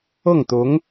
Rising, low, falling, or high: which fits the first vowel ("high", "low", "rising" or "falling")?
falling